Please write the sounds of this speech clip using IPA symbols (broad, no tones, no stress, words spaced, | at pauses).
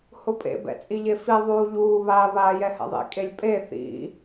hʊpʼḛbɛ̰ t͡sʼiʎefi ðˤuːʎuːβaː βaːjɛhɛ̰ðˤḭ kʼelʲpʼe θḭ